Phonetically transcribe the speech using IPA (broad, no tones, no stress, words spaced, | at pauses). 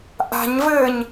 ʔa̤ɲvɘːɲ